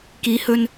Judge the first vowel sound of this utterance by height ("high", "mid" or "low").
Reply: high